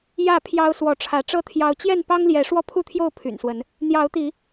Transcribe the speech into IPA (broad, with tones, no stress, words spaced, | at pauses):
jä˥˨ pʰjɑ˦ʊ̯ swɔ˨˦ʈ͡ʂʰä˨˦ ʈ͡ʂɤ˦t̪ʰjɑ˨˦ʊ̯ t͡ɕjɛ˥˨npɑ˦ŋljɛ˨˦ ʂwɔ˥˨pʰu˥˨t̪ʰjo˥˨ʊ̯ pʰy̰˨˩nswə˨˦n | n̪jɑ˨˦ʊ̯t̪i˨˦